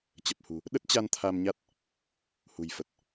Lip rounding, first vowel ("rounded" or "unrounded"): unrounded